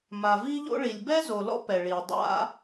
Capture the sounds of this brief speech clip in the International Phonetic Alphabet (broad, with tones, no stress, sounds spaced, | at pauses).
m a˩ v i˥ ʎ o̰˥ ɭ i˩ lʲ b ɛ˥ z o˩ l ɔ̰˥ p ɛ˩ ɭ i˩ dˤ a̰˥